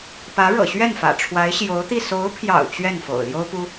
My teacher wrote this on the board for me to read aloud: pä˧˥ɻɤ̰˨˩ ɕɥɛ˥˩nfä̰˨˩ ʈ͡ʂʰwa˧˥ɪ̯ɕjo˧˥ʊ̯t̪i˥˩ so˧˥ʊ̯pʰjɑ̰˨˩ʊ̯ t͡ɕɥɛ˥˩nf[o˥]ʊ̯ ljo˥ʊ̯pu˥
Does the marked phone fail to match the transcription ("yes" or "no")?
yes